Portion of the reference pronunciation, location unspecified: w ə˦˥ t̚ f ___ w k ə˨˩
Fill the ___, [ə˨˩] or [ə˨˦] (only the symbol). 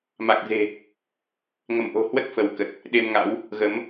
ə˨˦